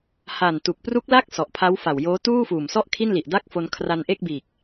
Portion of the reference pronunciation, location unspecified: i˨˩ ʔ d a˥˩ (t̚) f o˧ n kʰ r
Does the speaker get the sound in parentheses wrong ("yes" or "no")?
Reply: yes